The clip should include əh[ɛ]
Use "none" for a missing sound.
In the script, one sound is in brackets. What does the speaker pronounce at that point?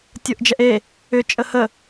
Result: ə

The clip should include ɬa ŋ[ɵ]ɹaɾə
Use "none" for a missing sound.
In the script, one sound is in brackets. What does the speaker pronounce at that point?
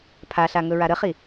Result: ɵ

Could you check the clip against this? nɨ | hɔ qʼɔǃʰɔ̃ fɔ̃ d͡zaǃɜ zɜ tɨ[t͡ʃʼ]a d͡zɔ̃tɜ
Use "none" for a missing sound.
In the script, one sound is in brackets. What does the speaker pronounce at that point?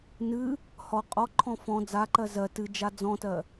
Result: d͡ʒ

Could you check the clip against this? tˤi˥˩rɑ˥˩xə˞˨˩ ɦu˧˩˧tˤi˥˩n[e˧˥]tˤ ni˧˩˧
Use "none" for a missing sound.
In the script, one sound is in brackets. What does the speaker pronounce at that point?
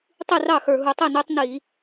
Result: e˧˥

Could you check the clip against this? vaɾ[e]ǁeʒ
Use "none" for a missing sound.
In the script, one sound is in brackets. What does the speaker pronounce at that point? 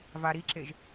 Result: i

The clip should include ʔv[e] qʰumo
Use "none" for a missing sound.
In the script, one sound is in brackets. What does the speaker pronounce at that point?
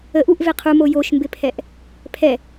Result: e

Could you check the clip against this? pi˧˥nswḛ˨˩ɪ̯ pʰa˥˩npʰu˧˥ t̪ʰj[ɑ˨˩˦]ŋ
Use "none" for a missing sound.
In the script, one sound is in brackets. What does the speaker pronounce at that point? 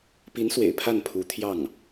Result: ɑ˥˩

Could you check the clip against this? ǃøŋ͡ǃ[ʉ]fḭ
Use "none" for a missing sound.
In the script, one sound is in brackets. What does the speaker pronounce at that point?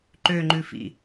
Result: ʉ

